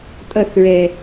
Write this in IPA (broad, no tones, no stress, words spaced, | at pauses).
tʼʌθɹɛ